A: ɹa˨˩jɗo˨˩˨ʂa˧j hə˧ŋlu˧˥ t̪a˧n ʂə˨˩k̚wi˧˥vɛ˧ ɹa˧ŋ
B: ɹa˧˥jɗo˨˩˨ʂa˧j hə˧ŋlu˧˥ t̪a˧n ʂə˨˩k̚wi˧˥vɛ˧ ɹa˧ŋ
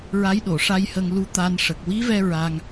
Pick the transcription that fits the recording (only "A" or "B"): B